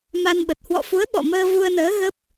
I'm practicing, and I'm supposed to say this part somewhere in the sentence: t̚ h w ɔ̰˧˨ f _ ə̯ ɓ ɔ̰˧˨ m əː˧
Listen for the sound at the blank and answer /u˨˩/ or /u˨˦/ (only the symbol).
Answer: u˨˦